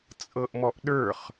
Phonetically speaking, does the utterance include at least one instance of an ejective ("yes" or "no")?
yes